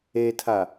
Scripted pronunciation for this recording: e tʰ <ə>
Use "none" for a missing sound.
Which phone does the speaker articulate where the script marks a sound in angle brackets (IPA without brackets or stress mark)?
a